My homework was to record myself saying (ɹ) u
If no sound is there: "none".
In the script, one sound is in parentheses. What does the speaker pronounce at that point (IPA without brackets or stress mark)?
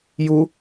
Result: j